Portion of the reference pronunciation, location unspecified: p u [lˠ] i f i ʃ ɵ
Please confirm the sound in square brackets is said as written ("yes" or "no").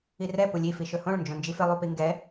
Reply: no